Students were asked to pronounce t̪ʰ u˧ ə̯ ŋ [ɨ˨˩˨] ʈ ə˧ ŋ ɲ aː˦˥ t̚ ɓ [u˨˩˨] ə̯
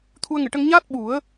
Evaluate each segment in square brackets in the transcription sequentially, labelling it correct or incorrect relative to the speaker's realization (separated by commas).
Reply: correct, incorrect